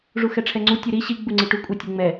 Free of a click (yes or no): no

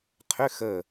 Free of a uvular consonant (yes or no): no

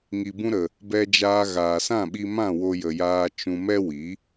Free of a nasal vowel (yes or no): no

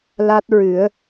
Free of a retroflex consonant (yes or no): yes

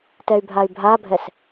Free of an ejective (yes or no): yes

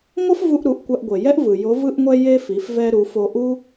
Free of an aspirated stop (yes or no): yes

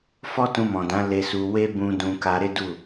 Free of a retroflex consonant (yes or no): yes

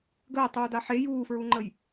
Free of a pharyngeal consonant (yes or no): no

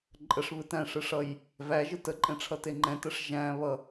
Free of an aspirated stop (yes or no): no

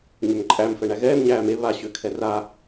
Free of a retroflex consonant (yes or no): no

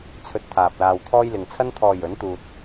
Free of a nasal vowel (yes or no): yes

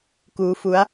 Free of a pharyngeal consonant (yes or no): yes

